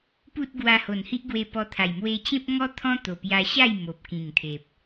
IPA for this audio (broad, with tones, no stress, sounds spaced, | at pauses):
p u˦ t̚ ɡ w a˧ h o˨˩ n h i˦ ʔ ɡ w e˧ p ɔ˧ t̪ʰ a˨˩ j m w e˧ t͡ɕ ẽ˦ p̚ ŋ ɔ˦ t̪ʰ ɔ̃˦ t̪ o˨˩ p j a˧ ɕ a˥˧ j m o˨ p̚ k ĩ˨˩ ŋ t̪ʰ e˨ p̚